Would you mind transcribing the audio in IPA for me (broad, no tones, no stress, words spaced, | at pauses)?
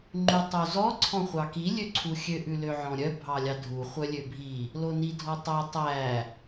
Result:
ŋ͡ǃʉtˤozɔ ǀʰɔ̃χʷɑki lʲøǀʰuxʲø ʔʉløʕɔ̃ɾʲœ bʱɑlʲɑdʱu χʷœlʲøbʱi | lonidʱɔtˤɑ tˤæ